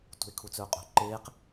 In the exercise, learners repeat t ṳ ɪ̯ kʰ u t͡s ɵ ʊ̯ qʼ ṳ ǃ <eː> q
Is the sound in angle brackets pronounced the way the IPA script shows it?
yes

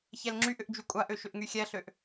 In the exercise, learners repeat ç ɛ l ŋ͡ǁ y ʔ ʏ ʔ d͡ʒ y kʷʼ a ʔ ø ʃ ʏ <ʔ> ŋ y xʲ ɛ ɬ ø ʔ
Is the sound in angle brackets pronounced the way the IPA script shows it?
yes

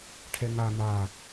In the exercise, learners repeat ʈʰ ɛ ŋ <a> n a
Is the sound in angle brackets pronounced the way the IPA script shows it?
yes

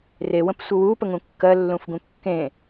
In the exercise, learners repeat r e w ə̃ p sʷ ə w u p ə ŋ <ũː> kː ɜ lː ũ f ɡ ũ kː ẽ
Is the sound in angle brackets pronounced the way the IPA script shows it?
no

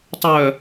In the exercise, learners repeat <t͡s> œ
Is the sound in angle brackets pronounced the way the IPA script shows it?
no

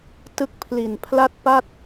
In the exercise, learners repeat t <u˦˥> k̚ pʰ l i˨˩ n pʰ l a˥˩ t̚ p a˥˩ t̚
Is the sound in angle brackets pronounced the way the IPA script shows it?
no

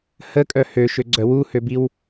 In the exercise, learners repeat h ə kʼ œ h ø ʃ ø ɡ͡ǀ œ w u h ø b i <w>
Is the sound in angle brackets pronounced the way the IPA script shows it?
yes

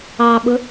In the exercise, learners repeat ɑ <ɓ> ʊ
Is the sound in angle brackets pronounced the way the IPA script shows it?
yes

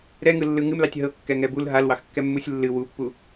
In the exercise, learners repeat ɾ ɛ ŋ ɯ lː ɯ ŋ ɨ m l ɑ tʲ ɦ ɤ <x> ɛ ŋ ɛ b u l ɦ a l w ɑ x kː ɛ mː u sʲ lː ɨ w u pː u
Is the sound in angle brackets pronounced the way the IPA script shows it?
no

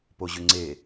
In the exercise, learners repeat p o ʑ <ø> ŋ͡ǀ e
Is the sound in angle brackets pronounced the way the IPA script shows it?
yes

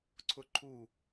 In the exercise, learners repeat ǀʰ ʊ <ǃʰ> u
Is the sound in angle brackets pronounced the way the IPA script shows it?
yes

